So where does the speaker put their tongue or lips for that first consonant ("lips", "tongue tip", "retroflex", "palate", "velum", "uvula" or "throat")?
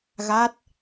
velum